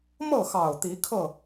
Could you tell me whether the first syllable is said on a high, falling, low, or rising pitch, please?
falling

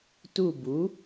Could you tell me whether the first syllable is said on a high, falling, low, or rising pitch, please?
falling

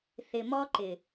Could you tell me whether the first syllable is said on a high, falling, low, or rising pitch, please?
low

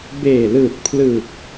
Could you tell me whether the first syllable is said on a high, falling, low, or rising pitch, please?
low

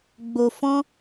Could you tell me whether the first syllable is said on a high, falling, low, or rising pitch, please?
low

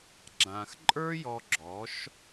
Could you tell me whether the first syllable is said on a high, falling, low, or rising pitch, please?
low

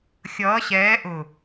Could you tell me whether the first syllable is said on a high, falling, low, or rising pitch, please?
rising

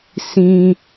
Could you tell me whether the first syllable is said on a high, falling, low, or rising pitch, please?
low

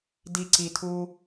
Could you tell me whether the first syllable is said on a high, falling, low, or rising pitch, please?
low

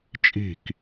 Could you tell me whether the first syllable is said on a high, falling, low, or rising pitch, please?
falling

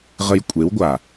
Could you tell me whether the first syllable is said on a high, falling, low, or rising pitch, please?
low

